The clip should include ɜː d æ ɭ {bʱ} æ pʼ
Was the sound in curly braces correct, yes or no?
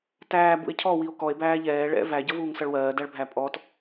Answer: yes